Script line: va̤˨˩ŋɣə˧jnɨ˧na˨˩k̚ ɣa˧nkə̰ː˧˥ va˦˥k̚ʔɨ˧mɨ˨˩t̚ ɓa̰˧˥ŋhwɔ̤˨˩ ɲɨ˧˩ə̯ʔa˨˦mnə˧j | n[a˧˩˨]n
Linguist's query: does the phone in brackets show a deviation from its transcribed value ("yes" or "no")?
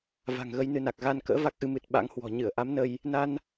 yes